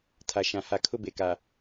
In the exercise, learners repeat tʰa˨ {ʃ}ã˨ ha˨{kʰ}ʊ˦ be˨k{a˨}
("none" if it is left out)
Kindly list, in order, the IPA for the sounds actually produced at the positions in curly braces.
ʃ, kʰ, a˨

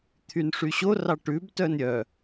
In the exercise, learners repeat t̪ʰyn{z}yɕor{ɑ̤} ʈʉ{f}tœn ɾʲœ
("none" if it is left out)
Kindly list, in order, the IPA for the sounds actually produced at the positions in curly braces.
ʂ, ɑ, b

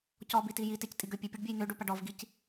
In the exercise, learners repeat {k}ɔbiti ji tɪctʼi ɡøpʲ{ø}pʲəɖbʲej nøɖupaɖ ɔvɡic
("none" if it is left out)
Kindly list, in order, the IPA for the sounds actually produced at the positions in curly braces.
c, e

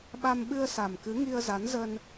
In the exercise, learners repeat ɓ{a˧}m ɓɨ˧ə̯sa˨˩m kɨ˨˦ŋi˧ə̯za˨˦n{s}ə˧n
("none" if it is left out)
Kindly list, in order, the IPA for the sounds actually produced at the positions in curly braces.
a˧, z

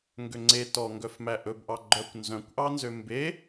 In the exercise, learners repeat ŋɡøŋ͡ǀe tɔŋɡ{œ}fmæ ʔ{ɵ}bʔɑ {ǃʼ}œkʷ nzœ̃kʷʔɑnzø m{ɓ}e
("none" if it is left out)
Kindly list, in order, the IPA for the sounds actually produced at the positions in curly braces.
œ, ɵ, ɡ͡ǃ, b

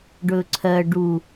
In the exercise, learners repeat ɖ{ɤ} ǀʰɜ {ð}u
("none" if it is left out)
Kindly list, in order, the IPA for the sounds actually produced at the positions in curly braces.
ɵ, ɖ

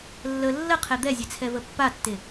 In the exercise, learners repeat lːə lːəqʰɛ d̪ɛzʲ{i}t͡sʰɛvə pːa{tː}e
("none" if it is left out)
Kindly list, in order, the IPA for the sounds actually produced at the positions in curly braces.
e, tː

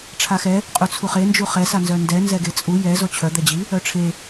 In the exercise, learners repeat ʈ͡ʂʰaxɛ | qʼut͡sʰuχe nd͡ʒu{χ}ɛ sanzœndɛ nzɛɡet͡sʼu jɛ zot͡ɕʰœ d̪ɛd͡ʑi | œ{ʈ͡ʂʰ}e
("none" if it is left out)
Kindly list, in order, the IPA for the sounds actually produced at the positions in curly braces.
χ, ʈ͡ʂʰ

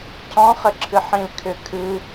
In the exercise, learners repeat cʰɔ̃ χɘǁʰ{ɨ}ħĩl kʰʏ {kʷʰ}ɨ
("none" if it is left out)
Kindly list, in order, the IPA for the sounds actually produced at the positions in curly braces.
ɨ, kʰ

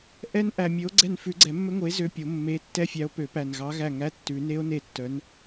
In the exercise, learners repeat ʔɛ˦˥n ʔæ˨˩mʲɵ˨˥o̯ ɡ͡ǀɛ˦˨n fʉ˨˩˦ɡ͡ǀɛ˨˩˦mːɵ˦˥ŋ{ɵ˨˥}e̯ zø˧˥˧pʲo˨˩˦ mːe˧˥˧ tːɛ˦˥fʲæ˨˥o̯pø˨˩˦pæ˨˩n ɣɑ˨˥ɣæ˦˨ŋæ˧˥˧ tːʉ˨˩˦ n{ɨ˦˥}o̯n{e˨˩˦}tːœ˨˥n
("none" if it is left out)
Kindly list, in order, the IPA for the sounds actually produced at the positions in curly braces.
o˨˥, e˦˥, e˦˨

